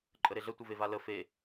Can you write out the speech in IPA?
ǃʼ ə ɾ e ɮ ə tʷ ə v e v a l ə f e

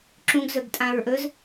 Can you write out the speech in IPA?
ǁ ũ ɡ z ɵ ɡ tʼ ã ɹ ʔ ɵ z

